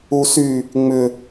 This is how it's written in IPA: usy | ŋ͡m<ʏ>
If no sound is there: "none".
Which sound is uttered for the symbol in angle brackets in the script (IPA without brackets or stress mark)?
ʏ